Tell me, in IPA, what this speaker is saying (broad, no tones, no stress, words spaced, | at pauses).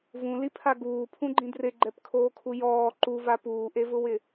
vũlipʰa ɡuːpʰũɡ͡ǃĩ drɪɡ͡ǃɛpkʰoːkʰu jɔː ǃuva puːʔevʊwɪ